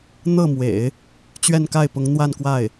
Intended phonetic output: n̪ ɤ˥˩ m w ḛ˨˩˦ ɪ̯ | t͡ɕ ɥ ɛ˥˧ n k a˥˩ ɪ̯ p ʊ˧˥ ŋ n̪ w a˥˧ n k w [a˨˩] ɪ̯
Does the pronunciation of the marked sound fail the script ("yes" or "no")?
yes